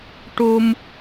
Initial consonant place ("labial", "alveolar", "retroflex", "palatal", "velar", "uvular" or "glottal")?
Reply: retroflex